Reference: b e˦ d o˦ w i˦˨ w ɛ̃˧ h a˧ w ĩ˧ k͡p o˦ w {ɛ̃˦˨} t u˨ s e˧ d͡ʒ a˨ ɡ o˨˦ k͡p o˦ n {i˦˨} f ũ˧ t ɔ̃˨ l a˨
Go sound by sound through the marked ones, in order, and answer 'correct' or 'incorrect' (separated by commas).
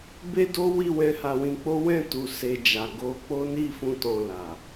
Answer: correct, correct